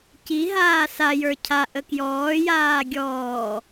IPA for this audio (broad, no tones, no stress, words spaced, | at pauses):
ciɦaː sajə˞ cʰaʔə kjɔːjaː ɡʲɔː